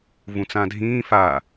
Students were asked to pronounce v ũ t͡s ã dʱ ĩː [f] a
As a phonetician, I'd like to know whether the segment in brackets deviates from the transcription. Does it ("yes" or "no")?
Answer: no